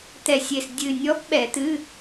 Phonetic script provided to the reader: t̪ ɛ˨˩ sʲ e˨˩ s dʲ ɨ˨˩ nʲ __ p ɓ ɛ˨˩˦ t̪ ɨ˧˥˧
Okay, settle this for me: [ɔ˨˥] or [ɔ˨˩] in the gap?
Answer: ɔ˨˥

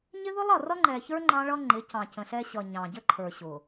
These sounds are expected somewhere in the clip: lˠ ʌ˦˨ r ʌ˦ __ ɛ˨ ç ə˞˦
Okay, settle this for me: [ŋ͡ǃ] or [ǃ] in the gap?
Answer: ŋ͡ǃ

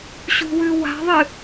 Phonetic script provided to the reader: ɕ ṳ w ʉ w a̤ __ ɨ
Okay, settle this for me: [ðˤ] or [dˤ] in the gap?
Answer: ðˤ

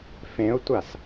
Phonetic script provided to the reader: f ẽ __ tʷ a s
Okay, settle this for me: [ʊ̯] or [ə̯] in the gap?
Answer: ʊ̯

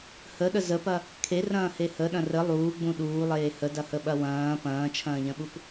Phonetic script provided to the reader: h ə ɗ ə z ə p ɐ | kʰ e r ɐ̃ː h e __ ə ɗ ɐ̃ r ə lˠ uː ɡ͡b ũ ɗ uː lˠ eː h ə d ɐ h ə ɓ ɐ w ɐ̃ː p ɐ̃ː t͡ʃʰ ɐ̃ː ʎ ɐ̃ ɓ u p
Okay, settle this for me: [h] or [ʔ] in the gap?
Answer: h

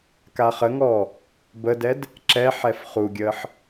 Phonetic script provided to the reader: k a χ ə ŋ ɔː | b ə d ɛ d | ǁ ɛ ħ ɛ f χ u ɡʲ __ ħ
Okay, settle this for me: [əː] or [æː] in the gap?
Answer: əː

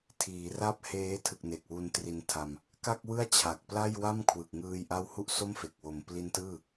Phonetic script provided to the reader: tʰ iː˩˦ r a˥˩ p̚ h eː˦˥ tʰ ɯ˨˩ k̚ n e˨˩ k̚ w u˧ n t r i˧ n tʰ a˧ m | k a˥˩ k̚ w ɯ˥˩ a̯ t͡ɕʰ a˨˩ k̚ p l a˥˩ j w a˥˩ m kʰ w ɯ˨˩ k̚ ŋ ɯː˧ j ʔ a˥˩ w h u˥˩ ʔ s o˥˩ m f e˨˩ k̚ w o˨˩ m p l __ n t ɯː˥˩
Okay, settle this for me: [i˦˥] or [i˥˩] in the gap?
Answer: i˦˥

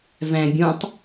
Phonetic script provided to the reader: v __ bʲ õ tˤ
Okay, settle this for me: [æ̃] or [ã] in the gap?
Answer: æ̃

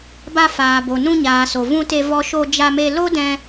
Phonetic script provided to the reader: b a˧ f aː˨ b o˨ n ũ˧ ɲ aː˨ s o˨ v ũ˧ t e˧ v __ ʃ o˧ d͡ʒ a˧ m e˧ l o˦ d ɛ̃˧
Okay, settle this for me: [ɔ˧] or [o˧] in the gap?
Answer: ɔ˧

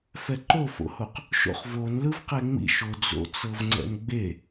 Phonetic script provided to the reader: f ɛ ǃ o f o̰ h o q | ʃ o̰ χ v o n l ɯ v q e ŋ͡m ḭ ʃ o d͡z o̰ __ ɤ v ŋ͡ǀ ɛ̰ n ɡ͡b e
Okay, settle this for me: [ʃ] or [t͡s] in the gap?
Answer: t͡s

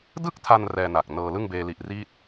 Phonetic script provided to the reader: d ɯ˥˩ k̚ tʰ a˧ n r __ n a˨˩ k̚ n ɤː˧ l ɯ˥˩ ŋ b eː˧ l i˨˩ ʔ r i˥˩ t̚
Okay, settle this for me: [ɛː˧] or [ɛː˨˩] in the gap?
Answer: ɛː˧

